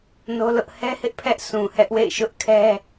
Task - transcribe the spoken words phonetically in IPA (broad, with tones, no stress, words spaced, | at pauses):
no˦lʊ˦ʔ hɛ˦hɪ˦ʔ pʰɛ˦ʔsũ˨hɛ˦ʔwḛ˦˨ɪ̯ ʃʊ˦ʔkʰɛ˦